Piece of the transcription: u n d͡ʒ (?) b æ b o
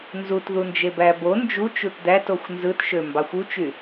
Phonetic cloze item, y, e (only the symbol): e